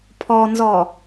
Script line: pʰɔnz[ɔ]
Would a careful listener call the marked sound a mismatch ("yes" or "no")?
no